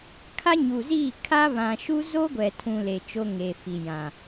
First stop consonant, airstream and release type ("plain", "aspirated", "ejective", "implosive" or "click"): aspirated